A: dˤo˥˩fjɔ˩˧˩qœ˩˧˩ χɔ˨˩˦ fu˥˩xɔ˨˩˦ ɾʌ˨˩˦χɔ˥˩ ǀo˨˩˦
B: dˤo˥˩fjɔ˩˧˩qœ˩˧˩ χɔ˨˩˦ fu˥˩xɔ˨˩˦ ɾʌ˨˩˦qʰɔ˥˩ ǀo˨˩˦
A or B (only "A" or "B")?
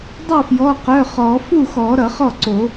A